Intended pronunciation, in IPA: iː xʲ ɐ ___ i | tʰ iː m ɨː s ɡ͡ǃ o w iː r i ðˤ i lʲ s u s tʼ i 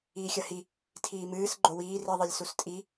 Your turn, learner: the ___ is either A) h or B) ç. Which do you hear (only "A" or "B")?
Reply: A